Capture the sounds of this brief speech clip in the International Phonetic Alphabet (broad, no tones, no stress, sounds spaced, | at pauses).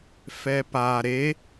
f ɛ p a ɾ e